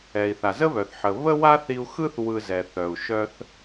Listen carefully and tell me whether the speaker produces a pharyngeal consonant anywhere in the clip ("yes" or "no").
yes